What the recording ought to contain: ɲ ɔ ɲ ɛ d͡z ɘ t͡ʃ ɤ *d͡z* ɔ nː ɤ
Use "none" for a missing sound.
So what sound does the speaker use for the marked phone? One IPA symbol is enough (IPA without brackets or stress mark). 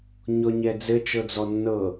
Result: d͡z